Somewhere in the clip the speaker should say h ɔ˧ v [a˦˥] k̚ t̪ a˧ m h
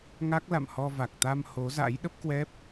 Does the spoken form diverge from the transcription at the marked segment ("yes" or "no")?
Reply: yes